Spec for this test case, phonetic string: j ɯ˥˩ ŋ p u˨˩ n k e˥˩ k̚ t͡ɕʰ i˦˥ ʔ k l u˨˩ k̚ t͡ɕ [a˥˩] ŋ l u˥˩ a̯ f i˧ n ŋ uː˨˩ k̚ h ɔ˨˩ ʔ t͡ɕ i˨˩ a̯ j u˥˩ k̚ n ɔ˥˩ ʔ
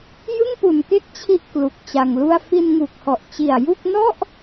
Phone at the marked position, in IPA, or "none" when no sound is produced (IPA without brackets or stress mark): a˧